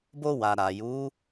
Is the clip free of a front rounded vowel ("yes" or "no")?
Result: yes